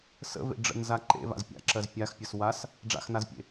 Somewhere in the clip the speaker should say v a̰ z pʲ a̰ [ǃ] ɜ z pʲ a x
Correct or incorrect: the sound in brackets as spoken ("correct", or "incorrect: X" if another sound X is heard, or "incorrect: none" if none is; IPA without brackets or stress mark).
incorrect: ǁ